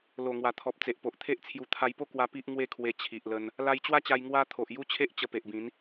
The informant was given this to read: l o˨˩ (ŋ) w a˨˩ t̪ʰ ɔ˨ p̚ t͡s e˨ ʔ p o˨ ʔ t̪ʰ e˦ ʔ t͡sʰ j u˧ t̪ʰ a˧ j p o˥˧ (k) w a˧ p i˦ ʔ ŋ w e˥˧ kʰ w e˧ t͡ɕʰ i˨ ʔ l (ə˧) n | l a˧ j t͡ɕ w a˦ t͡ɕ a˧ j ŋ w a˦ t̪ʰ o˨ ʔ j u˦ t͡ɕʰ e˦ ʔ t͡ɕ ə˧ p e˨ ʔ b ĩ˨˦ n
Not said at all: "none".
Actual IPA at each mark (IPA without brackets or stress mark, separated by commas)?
ŋ, k, ə˧